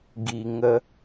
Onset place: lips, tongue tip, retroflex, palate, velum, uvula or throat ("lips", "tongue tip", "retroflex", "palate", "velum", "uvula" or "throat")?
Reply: velum